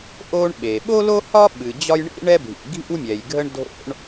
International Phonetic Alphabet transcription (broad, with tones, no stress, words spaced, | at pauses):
ʔo˥ɳɓe˩ ɓo˥lo˥hɒ˥ ɓɨ˩d͡ʑɒ˥j ɳḭ˥ɳɛ˥bʱḭ˩ ɡʱḭ˥wmʲɛ˩jɡʱə˥ɳ dʱo̰˥ɳ